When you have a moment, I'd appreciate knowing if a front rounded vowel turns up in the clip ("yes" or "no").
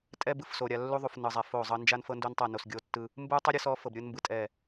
no